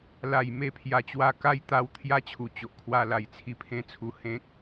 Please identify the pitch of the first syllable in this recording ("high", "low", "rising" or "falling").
low